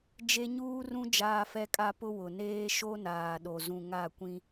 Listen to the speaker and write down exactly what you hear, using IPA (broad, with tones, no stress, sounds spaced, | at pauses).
d͡ʒ e˦ ɲ uː˦ r ũ˦ d͡ʒ aː˦ f ɛ˦ kʼ a˦ p ʊ˦ w ʊ˨ n eː˦ ʃ o˦ n aː˨ ɗ o˨ z ũ˨ ŋ a˦˨ kʷ ĩ˦